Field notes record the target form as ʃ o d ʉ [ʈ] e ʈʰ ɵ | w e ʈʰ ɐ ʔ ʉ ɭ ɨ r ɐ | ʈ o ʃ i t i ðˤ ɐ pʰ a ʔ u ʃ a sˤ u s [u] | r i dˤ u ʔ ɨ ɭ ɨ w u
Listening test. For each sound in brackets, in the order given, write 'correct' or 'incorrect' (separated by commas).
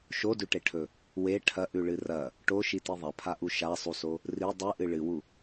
correct, incorrect